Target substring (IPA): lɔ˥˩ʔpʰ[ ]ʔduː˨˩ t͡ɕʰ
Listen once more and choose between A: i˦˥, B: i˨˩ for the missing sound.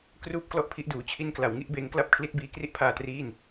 A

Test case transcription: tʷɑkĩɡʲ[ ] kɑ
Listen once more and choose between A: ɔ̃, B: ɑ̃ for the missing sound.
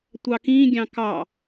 B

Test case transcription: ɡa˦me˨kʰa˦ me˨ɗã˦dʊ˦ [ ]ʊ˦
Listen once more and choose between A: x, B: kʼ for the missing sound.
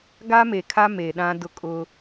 B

